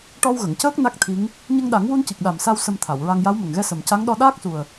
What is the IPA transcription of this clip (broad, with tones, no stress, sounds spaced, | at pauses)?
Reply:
ʈ ɔ˧ w ɣ ə˨˩˨ ŋ c əː˦˥ k̚ n a˦˥ k̚ t̪ʰ i˧˥ ŋ | ɲ ə˧ ŋ ɗ a˨˩˦ ŋ w u˧ n c i˨˩ k̚ ɗ a˨˩ m s a˧ w s ə˧ m t̪ʰ a˨˩˨ w ɹ a˧ ŋ j a˧˥ w m ə˨˩ ŋ ɣ ɛ˧ s ə˨˩ m c a˧˥ ŋ ɗ ɔ˧ ɗ aː˦˥ k̚ s u˨˩ ə̯